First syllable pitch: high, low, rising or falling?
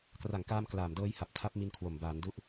low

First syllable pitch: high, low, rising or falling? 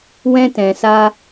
high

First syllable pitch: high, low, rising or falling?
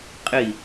falling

